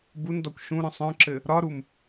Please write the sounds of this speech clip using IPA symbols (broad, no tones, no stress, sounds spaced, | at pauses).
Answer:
b u n d ɒ kʷ ʃ ũ ɾ œ̃ sˤ œ̃ ǁ ɘ | ɾ ɒ ɾ u m